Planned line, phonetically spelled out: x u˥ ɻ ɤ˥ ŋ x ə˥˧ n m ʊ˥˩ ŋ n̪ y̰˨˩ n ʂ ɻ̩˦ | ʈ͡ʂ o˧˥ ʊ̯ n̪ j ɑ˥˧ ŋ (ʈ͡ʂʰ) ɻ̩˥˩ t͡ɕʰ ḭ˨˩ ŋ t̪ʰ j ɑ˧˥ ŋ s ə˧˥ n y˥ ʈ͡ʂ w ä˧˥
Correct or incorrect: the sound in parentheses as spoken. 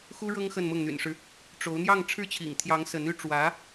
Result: correct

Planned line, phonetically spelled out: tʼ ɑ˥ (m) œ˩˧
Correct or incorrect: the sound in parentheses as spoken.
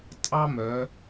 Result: correct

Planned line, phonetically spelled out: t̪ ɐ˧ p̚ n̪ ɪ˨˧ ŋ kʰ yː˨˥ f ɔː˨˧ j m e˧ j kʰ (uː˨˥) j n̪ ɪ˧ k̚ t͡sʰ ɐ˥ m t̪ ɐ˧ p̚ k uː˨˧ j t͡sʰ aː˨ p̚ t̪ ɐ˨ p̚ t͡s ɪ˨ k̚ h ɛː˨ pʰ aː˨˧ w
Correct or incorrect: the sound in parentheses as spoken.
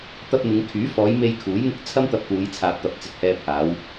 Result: correct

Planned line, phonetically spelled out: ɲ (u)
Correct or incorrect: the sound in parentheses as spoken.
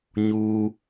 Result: correct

